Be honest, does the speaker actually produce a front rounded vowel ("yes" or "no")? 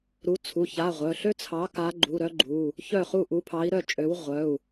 yes